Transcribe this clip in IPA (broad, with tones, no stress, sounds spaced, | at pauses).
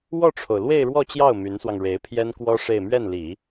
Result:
w ɔ˥˩ ʈ͡ʂʰ o˩ ʊ̯ l w e˥˧ ɪ̯ ɻ w ɔ˥˧ t͡ɕ j ɑ˥˩ ʊ̯ m y˧˥ n s w ɑ˧ ŋ ɻ e˧˥ ɪ̯ pʰ j ɛ˥ n k w ɔ˥ ʂ e˥˧ ɪ̯ m ɥ ɛ˥˩ n l i˨˩˦